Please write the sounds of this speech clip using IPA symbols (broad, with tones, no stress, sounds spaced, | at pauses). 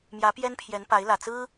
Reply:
m j ä˧˥ p j ɛ˥ n pʰ j ɛ˧˥ n p a˧˥ ɪ̯ l ä˨˩ t͡s ɹ̩˥